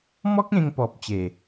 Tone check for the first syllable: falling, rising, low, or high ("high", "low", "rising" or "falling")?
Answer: high